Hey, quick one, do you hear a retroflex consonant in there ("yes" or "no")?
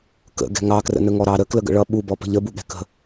yes